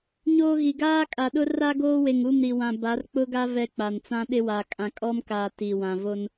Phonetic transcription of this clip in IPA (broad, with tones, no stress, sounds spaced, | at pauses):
ɲ oː˦ ɣ i˨ ɡ aː˦ kʼ a˨ ɗ ʊ˦ r a˦ ɡ oː˦ w e˨ ŋ u˦˨ m ɾ i˨ w ã˨ b a˨˦ r k͡p ʊ˦ ɡ a˦ v ɛ˦ k͡p a˨ n t͡s ã˦ ɗ ɪ˦ w a˨ kʼ ã˨ kʼ ɔ˦ m k aː˨ t i˨ w ã˨ v o˦ n